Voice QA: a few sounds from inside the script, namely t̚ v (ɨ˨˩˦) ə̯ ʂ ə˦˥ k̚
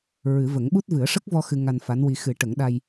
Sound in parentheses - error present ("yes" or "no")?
no